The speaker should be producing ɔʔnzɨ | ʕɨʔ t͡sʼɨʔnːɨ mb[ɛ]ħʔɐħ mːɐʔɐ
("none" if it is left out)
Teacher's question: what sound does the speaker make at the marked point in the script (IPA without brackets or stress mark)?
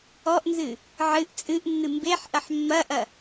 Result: e